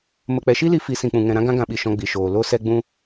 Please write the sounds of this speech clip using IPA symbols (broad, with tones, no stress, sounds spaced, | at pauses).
m ə˨ k͡p ɛ˨ ʃ i˦ l i˧ f i˨˦ s ĩ˨ k͡p ũ˨ ŋ ɛ̃˨ ɾ ã˦ ɡ ã˦ ɡ ã˧ ɓ i˨ ʃ ɔ̃˧ ɡ͡b i˨ ʃ oː˨ l o˧ s ɛ˧ ɡ͡b ũ˧